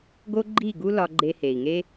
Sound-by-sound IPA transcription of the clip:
ɡo˦ɡ͡ǃi˦˨ɡu˦ lɒ˧ɡ͡ǃe˧he˨i̯ŋe˦

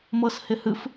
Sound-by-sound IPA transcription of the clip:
mɤshɪhɨf

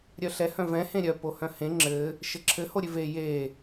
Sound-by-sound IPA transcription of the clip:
ɾʲœɬɛ hœ̃vɛ̃ hẽɾʲœ pohœ̃hẽ ŋ͡ǁɘ | ʃɘǁʰɘ hoɾʲʉve je

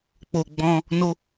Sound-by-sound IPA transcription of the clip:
k͡po˨ɡ͡bɔ̃˧ | no˧

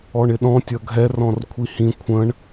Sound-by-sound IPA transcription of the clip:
ɔɳɪɗɔ̃ tʲʌɡʱɛ rɔ̃rkʷʰihĩ kʷʰə̃ɳ

